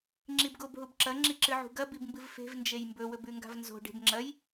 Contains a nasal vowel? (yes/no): no